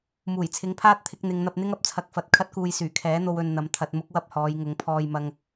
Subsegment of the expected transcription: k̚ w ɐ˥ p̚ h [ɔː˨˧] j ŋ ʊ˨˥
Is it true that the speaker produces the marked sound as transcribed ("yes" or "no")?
yes